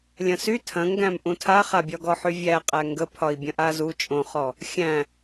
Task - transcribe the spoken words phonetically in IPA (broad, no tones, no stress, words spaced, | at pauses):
lʲɐ̃sy tʰɐ̃ŋɡæ̃m ʔũtʰaχabʲɒ ɡɔħyvʲæqʼæ ŋɡəpʰɒi̯ bʲɐ̃ʔazu t͡ʃʼõχɔ | xʲæ̃